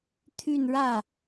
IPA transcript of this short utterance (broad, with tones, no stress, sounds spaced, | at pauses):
t̪ʰ y˥˧ n ɻ ä˥˩